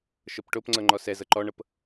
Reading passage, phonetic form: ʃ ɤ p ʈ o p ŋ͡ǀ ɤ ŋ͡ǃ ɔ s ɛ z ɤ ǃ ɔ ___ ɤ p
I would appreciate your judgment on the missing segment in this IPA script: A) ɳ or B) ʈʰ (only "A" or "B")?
A